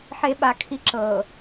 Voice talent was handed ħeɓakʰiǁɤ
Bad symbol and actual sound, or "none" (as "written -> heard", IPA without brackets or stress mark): none